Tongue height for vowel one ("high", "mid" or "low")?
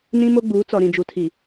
high